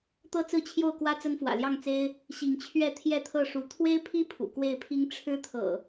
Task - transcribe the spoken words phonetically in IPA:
t̪ ɤ˦ t͡s ɹ̩˥˨ t͡ɕʰ j o˥˨ ʊ̯ k w ä˦ t͡s ə˦ n f w ä̰˨˩ l j ɑ˥˨ ŋ t͡s e˦ ɪ̯ | ɕ i˨˦ ŋ t͡ɕʰ ɥ ɛ˥˨ t̪ʰ j ɛ˥˨ t̪ʰ ɤ˥˨ ʂ u˨˦ t̪ʰ w e˦ ɪ̯ pʰ i˦ pʰ ṵ˨˩ k w e˥˨ ɪ̯ pʰ i˦ ŋ ʈ͡ʂʰ ɻ̩˦ t̪ʰ ɤ̰˨˩

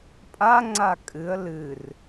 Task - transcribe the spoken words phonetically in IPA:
pʼ a ŋ͡ǀ a kʼ ɨ ə̯ l ɨ r

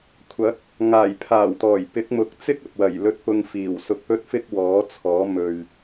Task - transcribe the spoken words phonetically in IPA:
kʷʰ ɐ˨˥ k̚ | ŋ aː˨˩ j pʰ aː˨˩ w t̪ ɔː˨˩ j p ɪ˨˥ k̚ m ʊ˨˥ k̚ t͡s ɪ˥ k̚ ɐ˨ p̚ w ɐ˨˩ j l ɵ˧ t̚ p ʊ˧ ŋ f iː˨˩ w s ʊ˧ k̚ p ɵ˥ t̚ f ɪ˥ k̚ w ɔː˨˥ t͡sʰ ɔː˨˥ m ɵ˨ ɥ

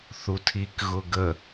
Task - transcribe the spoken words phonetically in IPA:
θ u tʰ i k ɣ ʊ ɡ ə

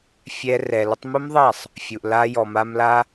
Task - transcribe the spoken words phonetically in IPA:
fʲ ɛ˧ r ɛ˨ l ʊ˧ tˤ m ʊ˦ m ðˤ a˦˨ sˤ | fʲ u˨ ʔ l a˧ j ɔ˨ m a˧ m l a˦

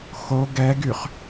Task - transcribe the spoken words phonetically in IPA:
x o ɡ ɛ ɡ y χ

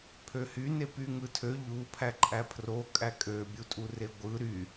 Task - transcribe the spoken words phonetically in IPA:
pʰ ø h y n e p y ŋ ɯ tʰ ø ʎ u pʰ æ ǃʼ æ pʰ r o kʼ æ kʼ ø bʲ u tʼ u r e ɡʷ ɯ ɾ y

